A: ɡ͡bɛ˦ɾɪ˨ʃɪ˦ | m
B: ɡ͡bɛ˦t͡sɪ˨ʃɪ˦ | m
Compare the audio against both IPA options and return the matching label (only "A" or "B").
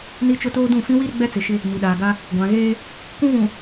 B